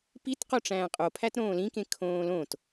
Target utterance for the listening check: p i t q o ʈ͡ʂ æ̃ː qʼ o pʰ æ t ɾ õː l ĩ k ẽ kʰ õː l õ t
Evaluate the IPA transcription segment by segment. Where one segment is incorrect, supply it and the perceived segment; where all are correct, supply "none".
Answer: none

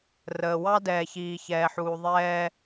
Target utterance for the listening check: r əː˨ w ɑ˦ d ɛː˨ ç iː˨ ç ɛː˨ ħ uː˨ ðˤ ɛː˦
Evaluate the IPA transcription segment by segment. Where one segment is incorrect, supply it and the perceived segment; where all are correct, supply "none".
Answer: none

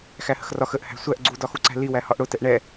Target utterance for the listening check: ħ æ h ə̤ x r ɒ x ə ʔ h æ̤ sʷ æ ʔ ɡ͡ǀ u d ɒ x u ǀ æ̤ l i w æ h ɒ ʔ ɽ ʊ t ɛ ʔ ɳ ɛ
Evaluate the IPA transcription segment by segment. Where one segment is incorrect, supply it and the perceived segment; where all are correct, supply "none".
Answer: ħ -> x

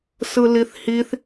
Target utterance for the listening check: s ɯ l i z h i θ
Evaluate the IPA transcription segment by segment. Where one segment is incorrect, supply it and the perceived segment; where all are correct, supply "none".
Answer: z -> θ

